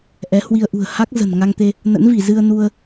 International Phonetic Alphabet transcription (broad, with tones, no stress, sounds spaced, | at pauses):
ʔ ɛ˨˦ h w i˧ ə̯ ʔ ṳ˨˩ ə̯ h a˦˥ k̚ z ə̤˨˩ n ŋ a˧ ŋ t̪ e˧ | n ə̰˧˥ n v i˧˩ z ɨ˧ ə̯ n u˧ ə̯